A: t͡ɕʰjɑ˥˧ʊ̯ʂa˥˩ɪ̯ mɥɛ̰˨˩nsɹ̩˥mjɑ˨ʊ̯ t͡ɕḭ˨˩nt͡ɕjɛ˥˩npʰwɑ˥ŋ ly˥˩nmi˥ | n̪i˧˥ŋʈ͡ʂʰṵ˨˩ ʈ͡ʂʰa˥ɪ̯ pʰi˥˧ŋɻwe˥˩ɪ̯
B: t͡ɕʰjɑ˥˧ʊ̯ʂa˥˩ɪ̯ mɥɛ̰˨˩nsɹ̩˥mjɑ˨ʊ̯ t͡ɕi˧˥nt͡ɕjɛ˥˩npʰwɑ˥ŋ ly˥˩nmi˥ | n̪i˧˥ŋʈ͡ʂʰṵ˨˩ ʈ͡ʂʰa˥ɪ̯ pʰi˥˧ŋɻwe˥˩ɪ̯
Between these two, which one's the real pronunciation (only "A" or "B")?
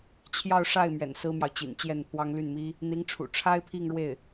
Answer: A